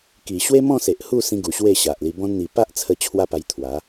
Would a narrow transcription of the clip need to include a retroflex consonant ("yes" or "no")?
no